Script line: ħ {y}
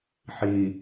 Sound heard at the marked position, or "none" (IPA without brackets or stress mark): i